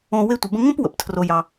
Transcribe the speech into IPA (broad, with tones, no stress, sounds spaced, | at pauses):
õ˧ w e˧ tʷ ə˨ b ə̃˧ ŋ õ˦ p w ə̰˨ p tʰ r o˨ j ɑ˨